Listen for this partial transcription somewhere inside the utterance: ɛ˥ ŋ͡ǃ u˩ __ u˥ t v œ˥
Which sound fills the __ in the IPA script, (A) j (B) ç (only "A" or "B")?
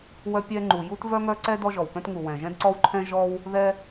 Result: A